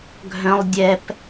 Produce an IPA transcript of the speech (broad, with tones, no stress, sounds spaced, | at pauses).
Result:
ɡʱ œ̃˦ lˠ dʲ ɛ˦ p